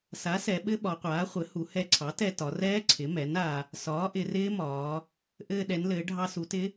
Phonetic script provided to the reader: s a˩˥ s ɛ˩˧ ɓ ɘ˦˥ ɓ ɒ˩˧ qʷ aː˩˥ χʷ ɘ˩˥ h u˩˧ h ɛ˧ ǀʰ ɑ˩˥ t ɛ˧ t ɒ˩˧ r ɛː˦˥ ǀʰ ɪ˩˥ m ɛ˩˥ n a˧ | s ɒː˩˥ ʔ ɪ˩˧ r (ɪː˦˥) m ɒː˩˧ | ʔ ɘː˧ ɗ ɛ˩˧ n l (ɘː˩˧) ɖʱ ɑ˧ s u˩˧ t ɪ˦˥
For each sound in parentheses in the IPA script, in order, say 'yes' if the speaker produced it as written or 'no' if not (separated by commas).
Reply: yes, yes